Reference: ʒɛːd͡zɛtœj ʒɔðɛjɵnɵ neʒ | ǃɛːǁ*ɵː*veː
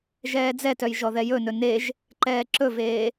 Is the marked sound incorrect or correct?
incorrect